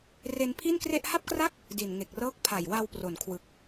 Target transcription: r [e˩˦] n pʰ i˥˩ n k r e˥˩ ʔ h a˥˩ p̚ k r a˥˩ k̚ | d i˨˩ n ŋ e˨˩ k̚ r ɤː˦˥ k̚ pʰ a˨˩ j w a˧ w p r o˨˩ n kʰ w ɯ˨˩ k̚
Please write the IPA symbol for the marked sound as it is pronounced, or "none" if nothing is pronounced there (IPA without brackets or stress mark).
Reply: e˧